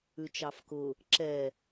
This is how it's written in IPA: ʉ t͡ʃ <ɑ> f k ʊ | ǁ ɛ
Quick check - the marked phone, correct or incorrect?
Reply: correct